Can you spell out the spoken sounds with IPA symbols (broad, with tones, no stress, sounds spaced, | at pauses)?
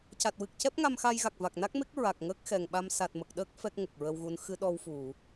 c a˨˩ t̚ w ɨ˨˩ k̚ c ɛ˦˥ p̚ ŋ a˧ m x a˧ j ɣ a˨˩ k̚ v a˨˩ k̚ n a˦˥ k̚ m e˦˥ k̚ ɹ a˨˩ k̚ ŋ əː˦˥ k̚ x ɛ˨˩ ŋ ɓ a˧ m s a˨˩ t̚ m ə˨˩ k̚ ɗ əː˦˥ k̚ f ɛ˦˥ k̚ ŋ ə˨˩ k̚ ɹ ə˧ w ɣ u˧˥ n x ɨ˧˥ ɗ ɔ˧ w f u˨˩˨